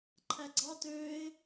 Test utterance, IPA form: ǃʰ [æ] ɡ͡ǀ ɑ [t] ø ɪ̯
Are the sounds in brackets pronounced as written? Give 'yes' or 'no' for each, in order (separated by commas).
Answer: yes, yes